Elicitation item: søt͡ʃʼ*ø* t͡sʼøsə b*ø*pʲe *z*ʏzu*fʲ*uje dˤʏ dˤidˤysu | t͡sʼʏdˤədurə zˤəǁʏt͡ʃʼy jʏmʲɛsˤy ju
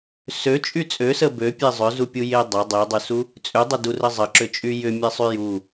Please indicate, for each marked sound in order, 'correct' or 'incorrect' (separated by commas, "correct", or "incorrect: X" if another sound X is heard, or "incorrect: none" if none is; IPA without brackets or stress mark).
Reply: incorrect: y, correct, incorrect: zˤ, incorrect: pʲ